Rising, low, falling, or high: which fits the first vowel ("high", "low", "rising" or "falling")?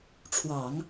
low